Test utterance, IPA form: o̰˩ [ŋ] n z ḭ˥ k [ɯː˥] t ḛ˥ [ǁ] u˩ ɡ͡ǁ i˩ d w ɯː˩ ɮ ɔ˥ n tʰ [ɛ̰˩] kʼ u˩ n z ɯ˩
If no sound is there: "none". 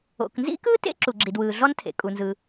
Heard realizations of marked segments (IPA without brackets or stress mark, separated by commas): k, ɯː˥, ǁ, ḛ˩